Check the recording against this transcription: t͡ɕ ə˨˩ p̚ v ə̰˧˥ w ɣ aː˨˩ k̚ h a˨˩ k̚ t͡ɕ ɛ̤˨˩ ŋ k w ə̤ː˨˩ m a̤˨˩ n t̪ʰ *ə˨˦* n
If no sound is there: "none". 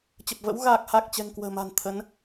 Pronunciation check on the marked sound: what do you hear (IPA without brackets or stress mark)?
ə˨˦